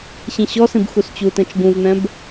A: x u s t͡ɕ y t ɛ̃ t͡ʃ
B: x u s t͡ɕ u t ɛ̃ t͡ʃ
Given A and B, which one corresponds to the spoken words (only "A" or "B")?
B